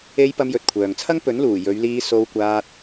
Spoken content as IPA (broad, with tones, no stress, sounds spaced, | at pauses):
e˧ j p ɐ˧ m j ɵ˨ t̚ kʷʰ œː˨ ŋ t͡sʰ ɐ˥ ŋ p ɵ˨˥ n l uː˨˩ j ɵ˨˧ ɥ l iː˧ s o˧ w kʷ aː˧ t̚